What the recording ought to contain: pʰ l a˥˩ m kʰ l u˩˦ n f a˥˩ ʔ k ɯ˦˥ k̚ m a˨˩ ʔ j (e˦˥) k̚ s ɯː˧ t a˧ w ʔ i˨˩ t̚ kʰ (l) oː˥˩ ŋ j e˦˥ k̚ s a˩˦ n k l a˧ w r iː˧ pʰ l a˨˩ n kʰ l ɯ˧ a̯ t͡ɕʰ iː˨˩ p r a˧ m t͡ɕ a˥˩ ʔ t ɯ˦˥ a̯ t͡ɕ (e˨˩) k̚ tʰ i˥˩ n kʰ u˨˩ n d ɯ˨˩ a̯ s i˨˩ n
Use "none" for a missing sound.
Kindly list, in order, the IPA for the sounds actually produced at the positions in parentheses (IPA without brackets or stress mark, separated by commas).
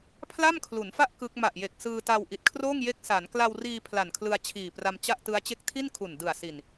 e˨˩, r, e˦˥